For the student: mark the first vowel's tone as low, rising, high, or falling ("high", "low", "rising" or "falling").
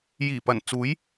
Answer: low